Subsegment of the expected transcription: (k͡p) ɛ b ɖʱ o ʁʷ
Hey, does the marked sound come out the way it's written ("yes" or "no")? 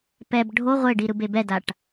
no